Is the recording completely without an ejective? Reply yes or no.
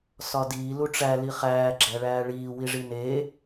yes